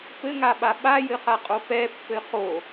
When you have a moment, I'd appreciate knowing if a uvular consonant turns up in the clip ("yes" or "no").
yes